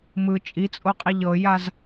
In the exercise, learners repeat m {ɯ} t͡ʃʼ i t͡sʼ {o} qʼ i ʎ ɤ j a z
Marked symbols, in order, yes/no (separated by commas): yes, yes